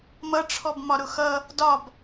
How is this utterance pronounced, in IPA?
m ʌ ʈ͡ʂʰ ɔ b m ɒ ɾ ʊ x ʌ | d ɒ b

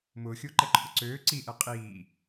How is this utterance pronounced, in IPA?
m ʊː xʲ ʊː ǃ ɛ ǃʰ ʊ ǀ øː ǀ i ʔ ɛ qʼ iː

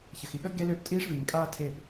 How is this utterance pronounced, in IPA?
ç ə˨ x i˨ ɠ ə˦ ɡ e˦ l øː˦ p tʼ iː˦ ʂ v iː˨ ŋ kʼ aː˦ tʰ eː˦˨ p

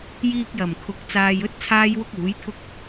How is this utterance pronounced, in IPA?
j iː˧ k̚ j ɐ˨˩ m kʰ ʊ˨˥ k̚ t͡s aː˧ j ɵ˥ t̚ t͡sʰ aː˥ j w ʊ˥ k̚ uː˨˥ j t̪ʰ ʊ˥ k̚

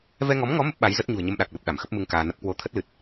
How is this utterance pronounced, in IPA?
v ɛ˧ ŋ ɔ˨˦ m ŋ ɔ˨˦ m ə˦˥ p̚ ɓ a˨˦ j z ə˦˥ t̚ ɲ ṳ˨˩ ə̯ ɲ ə˧ m ɗ a˨˩ k̚ l ə˨˩ p̚ ɗ a˧˩ m x ə˦˥ p̚ m ɨ˧ ŋ k aː˧ n ə˦˥ p̚ k w o˨˦ t̪ʰ ə˦˥ t̚ l ɨ˨˩ t̚

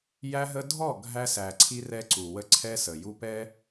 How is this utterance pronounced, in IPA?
j æ˦ ɦ ə˦ dʱ ɔ˦˨ ɡʱ æ˦ s æ˨ ǀʰ i˦ r ɛ˦ ǀ u˨ w ə˦ ǀʰ ɛ˦ s ə˨ j u˦ p ɛ˦

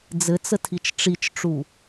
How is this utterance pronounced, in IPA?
d͡z ɘ t͡s ə tʰ i t͡ʃ ʈ͡ʂ i t͡ʃ ʈ͡ʂ u

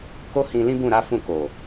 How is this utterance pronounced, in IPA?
k o˦ h ĩ˧ l ĩ˦ b ũ˦˨ ɾ a˨˦ f ũ˦˨ k o˨

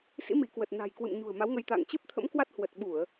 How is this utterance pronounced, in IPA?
s ḭ˧˥ m i˧˩ k w ə˨˩ t̚ n a̤˨˩ j k w ɨ̰˧˨ m ɲ ṳ˨˩ ə̯ m a˨˦ w ŋ ə˧ j t̪ a̰˧˨ ŋ t͡ɕ ɨ˦˥ p̚ t̪ʰ ə̰˧˥ m k w a˦˥ t̚ h w ə˨˩ t̚ ɓ u˧˩˨ ə̯

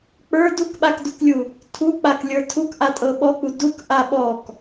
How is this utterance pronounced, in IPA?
k͡p ə˞ d u k ɓ a k d u k lʲ u | tʰ u k͡p a k lʲ ə˞ tʰ u k ʔ a tʼ ɤ ɓ ɔ k͡p u d u k ʔ a ɓ ɔ k

